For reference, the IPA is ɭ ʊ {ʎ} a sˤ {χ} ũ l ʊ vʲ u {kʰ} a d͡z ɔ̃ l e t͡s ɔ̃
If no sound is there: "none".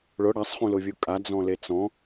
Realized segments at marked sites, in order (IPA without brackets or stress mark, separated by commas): ɽ, χ, kʼ